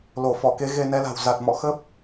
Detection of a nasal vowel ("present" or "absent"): absent